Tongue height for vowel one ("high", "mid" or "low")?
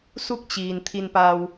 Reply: high